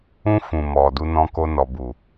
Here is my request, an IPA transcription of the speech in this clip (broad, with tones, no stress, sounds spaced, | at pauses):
ũ˦ f ũ˨ m ɔ˨ d u˧ n ɔ̃˧ k o˧ n ɔ˨ b u˨